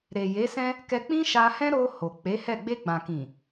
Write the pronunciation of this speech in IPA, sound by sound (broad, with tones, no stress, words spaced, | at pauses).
ɾe˨je˨˦sɛ̃˦ | kɛ˧k͡pĩ˦ʃa˧hɛ̃˦ ɾo˧ ho˨ k͡pe˨˦hɛ˦˨ ɡ͡be˧ɡ͡bã˨kĩ˨